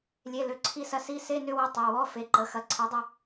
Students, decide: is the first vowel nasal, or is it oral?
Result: oral